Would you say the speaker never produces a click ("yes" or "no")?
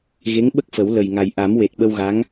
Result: yes